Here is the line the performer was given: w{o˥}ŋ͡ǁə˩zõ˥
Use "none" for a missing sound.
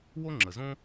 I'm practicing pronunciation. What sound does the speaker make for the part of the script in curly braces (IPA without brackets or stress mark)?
o˥